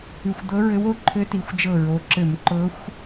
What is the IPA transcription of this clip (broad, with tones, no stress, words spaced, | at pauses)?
ʉ˧˩xʷ d̪ɤ˧˥ɹɘ˧˥wo˧˥ ǃʰɘ˧˥ti˩˧xʷ d͡ʒɤ˧˩ɹo˩˧ǁɘ˧˩˧m ǃɤ˧˥xʷ